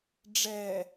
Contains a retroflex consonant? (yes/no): yes